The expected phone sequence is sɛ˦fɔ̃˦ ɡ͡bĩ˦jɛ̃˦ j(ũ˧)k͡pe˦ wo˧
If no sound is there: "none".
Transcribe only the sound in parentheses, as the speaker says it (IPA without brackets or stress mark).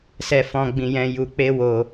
u˧